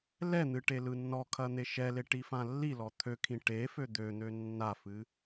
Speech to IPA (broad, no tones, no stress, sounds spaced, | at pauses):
l ɛ n̪ ɨ ʈ e l ɯ nː ɔ kʰ ɐ n̪ e ʃ ɛ l e ʈ i f ã lː i l ɔ t̪ʰ ø kʰ ĩ ʈ e f ø d̪ ø n̪ ø nː a f ɨ